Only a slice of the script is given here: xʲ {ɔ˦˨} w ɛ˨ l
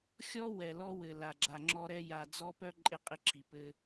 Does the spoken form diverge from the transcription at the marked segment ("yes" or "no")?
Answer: yes